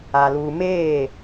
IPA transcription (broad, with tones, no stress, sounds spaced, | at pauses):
a˨ l uː˨ m eː˦˨